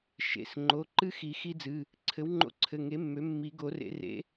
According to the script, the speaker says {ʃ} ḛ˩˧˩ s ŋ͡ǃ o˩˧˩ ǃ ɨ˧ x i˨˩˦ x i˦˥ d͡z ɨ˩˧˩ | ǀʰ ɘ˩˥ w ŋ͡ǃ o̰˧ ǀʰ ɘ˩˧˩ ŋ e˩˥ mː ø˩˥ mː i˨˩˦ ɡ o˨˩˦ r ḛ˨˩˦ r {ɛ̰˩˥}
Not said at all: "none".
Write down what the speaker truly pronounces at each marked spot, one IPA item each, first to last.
ʃ, ḛ˩˥

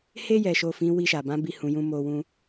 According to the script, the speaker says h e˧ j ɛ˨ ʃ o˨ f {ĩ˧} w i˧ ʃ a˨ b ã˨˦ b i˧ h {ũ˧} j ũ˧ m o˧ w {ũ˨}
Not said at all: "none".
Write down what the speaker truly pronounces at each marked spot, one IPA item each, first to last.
ĩ˨˦, ũ˨, ũ˦

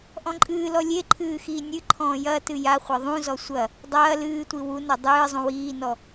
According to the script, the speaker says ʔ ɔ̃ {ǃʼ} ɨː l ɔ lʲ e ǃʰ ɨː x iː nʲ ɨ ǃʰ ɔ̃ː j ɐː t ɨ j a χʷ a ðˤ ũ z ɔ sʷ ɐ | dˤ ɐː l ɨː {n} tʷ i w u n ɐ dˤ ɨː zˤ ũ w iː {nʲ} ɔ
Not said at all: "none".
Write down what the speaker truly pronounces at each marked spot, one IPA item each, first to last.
ǃʼ, none, n

